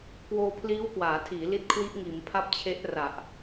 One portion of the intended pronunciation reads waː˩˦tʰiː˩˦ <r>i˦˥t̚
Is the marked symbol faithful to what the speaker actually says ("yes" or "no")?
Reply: no